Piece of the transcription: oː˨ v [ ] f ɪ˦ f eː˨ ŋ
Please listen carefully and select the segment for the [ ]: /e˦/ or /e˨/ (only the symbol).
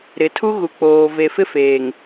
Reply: e˨